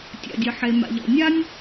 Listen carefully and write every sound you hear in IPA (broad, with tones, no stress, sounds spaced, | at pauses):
tʲ a̰˩ dʲ ʌ˩ ħ e˩ m a̰˩ ʎ ɔ̰˩ nʲ a˦ nʲ